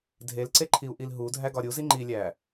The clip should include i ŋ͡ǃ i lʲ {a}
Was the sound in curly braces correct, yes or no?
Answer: no